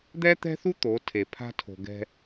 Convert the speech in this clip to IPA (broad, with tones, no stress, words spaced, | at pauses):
d̪ɛ˦t̪ɛ̤˦θu˦ t̪o˨˦tʰe˨pʰa̤˦ tʰo̤˨ ɡɛ̤˦